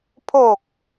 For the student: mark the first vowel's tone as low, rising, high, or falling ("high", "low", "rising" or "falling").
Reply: low